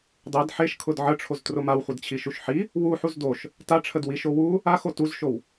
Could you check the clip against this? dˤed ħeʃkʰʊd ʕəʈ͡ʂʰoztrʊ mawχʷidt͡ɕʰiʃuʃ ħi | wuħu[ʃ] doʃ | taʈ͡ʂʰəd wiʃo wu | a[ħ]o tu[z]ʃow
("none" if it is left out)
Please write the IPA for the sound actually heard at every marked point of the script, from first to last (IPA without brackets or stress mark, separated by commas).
z, x, z